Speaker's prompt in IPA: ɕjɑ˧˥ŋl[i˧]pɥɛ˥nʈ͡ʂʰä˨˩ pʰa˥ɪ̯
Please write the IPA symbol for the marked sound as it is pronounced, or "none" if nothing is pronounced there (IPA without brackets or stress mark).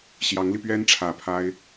i˧